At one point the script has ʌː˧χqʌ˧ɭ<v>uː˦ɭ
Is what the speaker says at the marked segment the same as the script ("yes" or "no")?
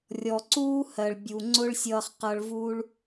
yes